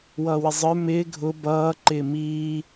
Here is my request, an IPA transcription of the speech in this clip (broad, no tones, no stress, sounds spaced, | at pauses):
w ʌː w ɪ zˤ ə˞ m ɪː ɡʱ ʊ b ʌː ǃ ɪː m iː